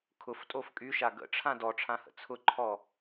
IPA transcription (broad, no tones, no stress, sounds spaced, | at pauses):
kʰ ʊ f tʼ o f kʼ y ʃ a ɡ ə̰ ʈ͡ʂʰ ã d ɔ ʈ͡ʂʰ ã h ə̰ t͡sʰ ʊ ǃʰ ɔ